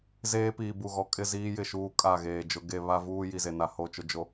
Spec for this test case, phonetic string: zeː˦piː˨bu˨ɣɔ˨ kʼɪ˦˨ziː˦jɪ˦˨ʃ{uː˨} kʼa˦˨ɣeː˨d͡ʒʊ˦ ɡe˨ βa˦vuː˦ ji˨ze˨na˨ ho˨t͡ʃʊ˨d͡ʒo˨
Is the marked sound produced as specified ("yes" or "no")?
yes